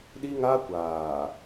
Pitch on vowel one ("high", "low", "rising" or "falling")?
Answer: high